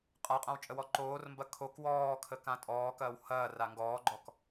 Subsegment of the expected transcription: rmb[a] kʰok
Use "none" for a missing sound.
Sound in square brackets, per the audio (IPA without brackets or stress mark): ɐ